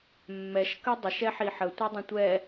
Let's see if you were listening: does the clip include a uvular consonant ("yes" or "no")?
no